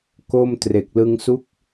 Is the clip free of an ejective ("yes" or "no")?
yes